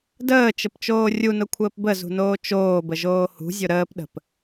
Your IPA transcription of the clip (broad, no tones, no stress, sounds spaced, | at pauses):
d əː t͡ʃ ə p t͡ʃ oː rʲ u n ʊ kʷʰ əː p b ə z ṳ n oː t͡ʃ oː b ə ʒ oː h ṳ zʲ ʊ ɾ əː p ɗ ə̤ p